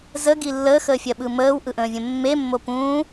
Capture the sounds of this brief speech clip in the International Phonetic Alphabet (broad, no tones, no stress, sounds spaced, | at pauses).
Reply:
z ə ɡ i lː əː x əː fʲ ɜ ɓ ɯ m əː w ʔ ɯ ʔ ə̃ː vʲ ə̃ mː e mː o p ũː